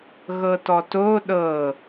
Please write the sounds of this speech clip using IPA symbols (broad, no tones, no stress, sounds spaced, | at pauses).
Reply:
ɣ ɤ t ɔ t o ɗ ɤ